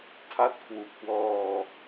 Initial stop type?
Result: aspirated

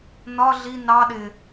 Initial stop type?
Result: implosive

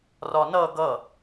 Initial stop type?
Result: plain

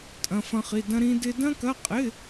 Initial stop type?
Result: ejective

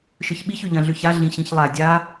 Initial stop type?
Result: implosive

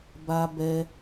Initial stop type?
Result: plain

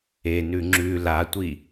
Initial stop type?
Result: click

